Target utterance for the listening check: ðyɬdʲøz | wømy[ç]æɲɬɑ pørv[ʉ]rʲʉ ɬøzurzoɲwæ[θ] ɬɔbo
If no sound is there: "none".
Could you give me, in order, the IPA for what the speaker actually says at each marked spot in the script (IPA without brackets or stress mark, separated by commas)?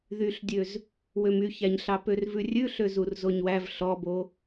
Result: ç, ʉ, v